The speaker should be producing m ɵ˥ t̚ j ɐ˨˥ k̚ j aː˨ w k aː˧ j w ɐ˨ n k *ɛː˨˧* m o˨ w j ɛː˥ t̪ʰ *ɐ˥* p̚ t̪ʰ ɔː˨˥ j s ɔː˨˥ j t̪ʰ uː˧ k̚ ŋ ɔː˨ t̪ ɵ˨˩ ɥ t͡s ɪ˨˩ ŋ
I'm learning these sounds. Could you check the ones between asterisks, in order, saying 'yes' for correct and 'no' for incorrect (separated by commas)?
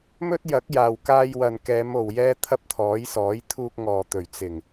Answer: yes, yes